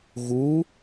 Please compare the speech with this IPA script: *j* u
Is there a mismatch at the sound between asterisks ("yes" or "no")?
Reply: yes